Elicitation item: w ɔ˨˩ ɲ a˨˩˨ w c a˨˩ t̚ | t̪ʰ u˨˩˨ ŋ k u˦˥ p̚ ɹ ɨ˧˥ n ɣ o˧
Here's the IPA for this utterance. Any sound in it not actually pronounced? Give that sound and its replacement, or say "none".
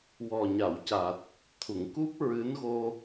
none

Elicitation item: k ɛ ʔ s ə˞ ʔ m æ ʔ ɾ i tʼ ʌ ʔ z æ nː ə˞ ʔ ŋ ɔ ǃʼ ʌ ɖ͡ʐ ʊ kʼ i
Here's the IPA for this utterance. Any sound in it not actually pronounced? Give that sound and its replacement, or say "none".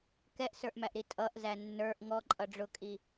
none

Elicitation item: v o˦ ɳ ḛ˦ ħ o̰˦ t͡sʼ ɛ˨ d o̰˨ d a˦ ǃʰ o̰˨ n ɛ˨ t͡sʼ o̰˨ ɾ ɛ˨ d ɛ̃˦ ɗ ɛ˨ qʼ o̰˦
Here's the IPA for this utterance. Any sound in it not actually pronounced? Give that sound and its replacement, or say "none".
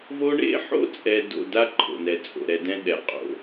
none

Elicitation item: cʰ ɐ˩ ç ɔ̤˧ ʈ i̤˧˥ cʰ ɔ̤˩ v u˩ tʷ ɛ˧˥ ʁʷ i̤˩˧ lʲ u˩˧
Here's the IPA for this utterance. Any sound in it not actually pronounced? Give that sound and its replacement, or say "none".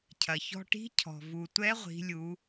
none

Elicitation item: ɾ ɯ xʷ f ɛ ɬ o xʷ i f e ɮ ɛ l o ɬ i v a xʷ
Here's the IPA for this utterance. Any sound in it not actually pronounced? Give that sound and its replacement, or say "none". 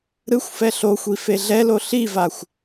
none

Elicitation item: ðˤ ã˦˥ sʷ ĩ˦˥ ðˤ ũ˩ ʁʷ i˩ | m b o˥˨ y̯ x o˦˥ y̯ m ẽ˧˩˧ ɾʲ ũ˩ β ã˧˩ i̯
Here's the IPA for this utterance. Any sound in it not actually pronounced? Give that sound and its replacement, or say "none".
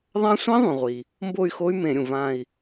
β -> v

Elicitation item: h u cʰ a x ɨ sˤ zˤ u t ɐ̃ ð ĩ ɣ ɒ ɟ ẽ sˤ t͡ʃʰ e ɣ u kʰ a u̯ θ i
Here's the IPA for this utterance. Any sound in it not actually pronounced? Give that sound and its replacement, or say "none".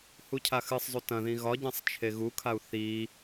none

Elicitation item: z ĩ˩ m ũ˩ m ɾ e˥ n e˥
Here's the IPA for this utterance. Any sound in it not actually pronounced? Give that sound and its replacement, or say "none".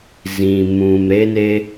none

